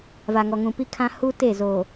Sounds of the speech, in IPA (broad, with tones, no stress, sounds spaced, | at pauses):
v a˨ ŋ ɔ˨ ŋ ũ˨ p i˦ kʰ ã˦ h u˦ t e˦˨ z o˨